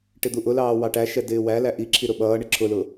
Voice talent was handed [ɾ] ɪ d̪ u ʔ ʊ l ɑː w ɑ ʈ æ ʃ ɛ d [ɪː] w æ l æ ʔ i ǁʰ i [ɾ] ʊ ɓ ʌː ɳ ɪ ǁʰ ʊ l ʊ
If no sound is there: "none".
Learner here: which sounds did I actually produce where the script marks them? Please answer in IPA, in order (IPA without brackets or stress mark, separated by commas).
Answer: ʈ, ɪː, ɾ